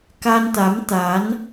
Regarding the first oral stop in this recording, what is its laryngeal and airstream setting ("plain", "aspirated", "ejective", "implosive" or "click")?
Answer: plain